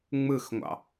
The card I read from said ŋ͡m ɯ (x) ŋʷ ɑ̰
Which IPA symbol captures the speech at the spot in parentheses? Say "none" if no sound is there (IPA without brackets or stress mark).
x